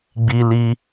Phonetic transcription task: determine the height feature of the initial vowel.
high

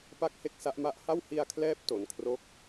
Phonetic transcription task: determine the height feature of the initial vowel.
low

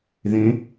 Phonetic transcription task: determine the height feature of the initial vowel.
mid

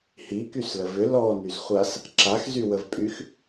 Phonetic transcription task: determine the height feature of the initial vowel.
high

